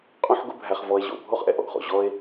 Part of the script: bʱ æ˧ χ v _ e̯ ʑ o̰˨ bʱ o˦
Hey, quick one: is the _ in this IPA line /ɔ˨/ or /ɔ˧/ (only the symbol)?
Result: ɔ˧